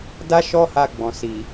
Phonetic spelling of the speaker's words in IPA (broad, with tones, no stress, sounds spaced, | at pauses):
d a˦ ʃ ɔ˦ h a˧ ɡ͡b ɔ̃˨ s i˨